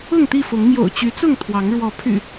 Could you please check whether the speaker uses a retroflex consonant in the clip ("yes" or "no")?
yes